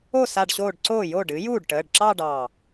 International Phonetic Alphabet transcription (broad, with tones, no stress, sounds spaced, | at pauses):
o˥˩ s a˧˩ ɖ ɕ oː˧˩ ɖ ǀ oː˥˩ j o˥˩ ɖ ɨ˩˥ j uː˥˩ ɖ ʈ əː˩˧˩ ɖ ǁ ɑ˥˧ ɖ ɑ˧˩